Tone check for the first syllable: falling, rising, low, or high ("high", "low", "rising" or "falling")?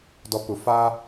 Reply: low